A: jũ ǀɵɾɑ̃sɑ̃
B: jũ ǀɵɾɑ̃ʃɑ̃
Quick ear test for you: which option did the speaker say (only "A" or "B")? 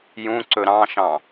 B